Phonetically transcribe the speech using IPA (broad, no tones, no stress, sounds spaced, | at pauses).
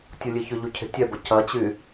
tʲ u lʲ e ç ʏ ʎ u cʰ e̤ tʲ ɛ b ɐ c ɐ t͡ɕ y